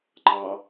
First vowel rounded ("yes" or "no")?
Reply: no